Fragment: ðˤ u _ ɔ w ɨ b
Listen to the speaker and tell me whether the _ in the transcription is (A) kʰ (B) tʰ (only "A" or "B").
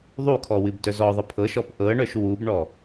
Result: A